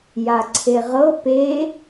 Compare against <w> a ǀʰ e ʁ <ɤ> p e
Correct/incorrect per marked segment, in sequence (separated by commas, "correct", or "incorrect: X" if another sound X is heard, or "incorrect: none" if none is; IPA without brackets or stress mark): incorrect: j, correct